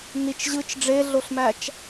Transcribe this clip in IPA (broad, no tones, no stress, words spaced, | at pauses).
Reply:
nit͡ʃ ʑɯt͡ʃ ɖ͡ʐeɮoɬmæt͡ʃ